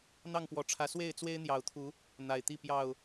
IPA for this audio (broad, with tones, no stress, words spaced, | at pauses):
n̪ɑ˥˨ŋpwɔ˨˩ʈ͡ʂʰä˨˦ swe˥˨ɪ̯t͡swe˦ɪ̯n̪jɑ˨˩ʊ̯t̪ʰu˨˦ | n̪a˨˩ɪ̯t̪i˥˨ pjɑ˥˨ʊ̯